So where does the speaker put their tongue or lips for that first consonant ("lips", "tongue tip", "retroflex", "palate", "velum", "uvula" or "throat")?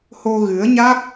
throat